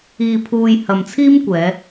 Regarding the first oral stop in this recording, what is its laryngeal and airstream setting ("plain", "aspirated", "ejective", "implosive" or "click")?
aspirated